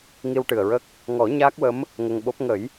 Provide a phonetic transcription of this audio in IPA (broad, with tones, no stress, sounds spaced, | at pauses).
ŋ i˧ w ʈ ɨ˨˩ ə̯ ɹ ə˦˥ k̚ | ŋ ɔ˨˩˦ ɲ aː˦˥ k̚ w ə˧˥ m | ŋ ə˧ ŋ ɓ o˦˥ p̚ ŋ ə˨˩˦ j